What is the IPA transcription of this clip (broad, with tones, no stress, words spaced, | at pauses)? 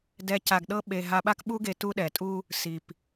dɛ˧ ca˧ɡɗɤ˥ɓe˧ ɦa˧ɓa˥kɓu˥ɡe˧ tu˧ɗɛ˩tʼu˧ | si˩p